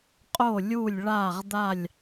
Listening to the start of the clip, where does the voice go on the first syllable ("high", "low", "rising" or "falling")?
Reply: falling